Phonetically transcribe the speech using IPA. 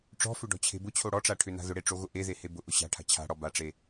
ʈ͡ʂ ɔ̤ f ʏ ɖ ɔ̤ t͡ɕʰ e̤ b ʊ t͡ɕʰ o ɽ ɔ ʈ͡ʂ a ʈʰ ʏ n a̤ ð ʊ ɽ e ʈ͡ʂ o ɣ ʊ ʔ e ð e h e b ʊ ʔ ʊ ɕ a̤ ʈʰ a̤ t͡ɕʰ a̤ ɽ ɔ b a ʈ͡ʂ e

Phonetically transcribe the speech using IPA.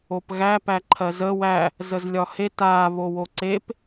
o p ɣ æ p æ ǃʰ ɜ z ə w æ | z ə z lʲ ɒ h e t a β o w o ǀ e p

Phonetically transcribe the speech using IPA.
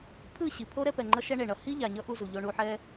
pʰ ɯ˦˨ ɕ i˨ pʰ o˦ ɾ ɛ˧ p ɛ˨ ŋ͡ǃ ʌ˧ ʃ ɛ˧ ɳ e˨ ɳ ʌ˧ h i˦ ʎ a˨ ɲ ʌ˦ ʔ u˧ z u˨ ʎ o˧ ɳ u˧ ħ ɛ˦

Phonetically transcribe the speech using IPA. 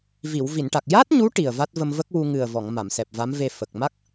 v i˨˩˨ w v i˨˩˨ n ʈ a˨˩ k̚ j a˦˥ t̚ ɲ u˧˥ ʈ i˨˩ ə̯ v a˦˥ t̚ v ə˧ m v ə˦˥ k̚ w u˧ ŋ ɨ˨˩ ə̯ v ɔ˨˩˨ ŋ m a˨˩˨ m s ɛ˨˩ p̚ v a˧˥ m v e˧ f ə˨˩ k̚ m a˦˥ k̚

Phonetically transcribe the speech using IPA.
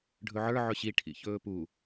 ɖʱ ɵ ʕ ə˞ ʕ ɵ ɕ i ʈʰ ḭ ç ɵː p u

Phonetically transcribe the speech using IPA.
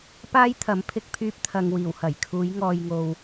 p aː˥ j t̪ʰ ɐ˨˥ m pʰ ɪ˨ k̚ pʰ yː˧ p̚ t̪ʰ ɐ˨ ŋ w iː˨˩ w h ɐ˨˩ j kʰ uː˨˧ j ŋ ɔː˨ j ŋ o˨ w

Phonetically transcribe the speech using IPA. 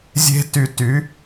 zʲ e̤˥ t y˧ t y˩˥

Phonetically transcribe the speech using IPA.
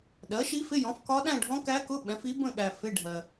ɗ ɜ˩˥ ʃ i˧˥ f ɪ˧˥˧ j ɔ̃˩˥ f k ɒ˧˥ ɗ æ̃˥˧ ɖʱ ɔ̃˧˥ k æ˧˥ k ʊ˧˥˧ ɓ ɛ̃˩˥ f i˧˥ b ə̃˥˧ ɠ æ˨ f ɪ˧˥˧ ɖʱ ɜ˨

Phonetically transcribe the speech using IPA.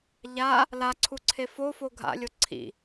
ʎ a | l a ǀʰ u ǀʰ e f o f o ɡʱ a̰ lʲ o ǀʰ ḭ

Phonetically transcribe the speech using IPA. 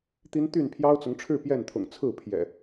t̪ i˦ n t̪ y˥˨ n pʰ j ɑ˦ ʊ̯ t͡s ʊ˨˦ ŋ ʈ͡ʂʰ ɻ̩˥˨ p j ɛ˥˨ n t̪ʰ ʊ̰˨˩ ŋ t͡sʰ ɹ̩˥˨ pʰ j ɛ̰˨˩

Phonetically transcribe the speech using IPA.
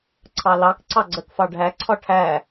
ǀʰ ɑ l ɑ k ǀ ɑ ɡ͡ǀ ɜ k f ɑ ɖʱ æ ǀʰ ɒ ʈʰ æ

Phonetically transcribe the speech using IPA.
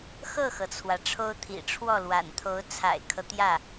x ɤ˥˩ x ɤ˩ t͡sʰ w ä˩ ʈ͡ʂʰ o˥ ʊ̯ t̪ʰ ḭ˨˩ ʈ͡ʂʰ w ɔ˥˩ l w a̰˨˩ n t̪ʰ o˧˥ ʊ̯ t͡sʰ a̰˨˩ ɪ̯ kʰ ɤ˦ t̪ j ä˥˩

